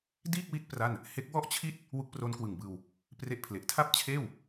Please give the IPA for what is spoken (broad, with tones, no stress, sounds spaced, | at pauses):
d iː˥˩ k̚ w i˦˥ t̚ p r a˥˩ n | h e˦˥ k̚ w ɔ˥˩ ʔ t͡ɕʰ i˥˩ t̚ | w u˦˥ k̚ p r o˦˥ n k w ɯ˨˩ ŋ b ɯː˧ w | p r e˦˥ ʔ pʰ l e˨˩ ʔ tʰ a˥˩ p̚ t͡ɕʰ eː˥˩ w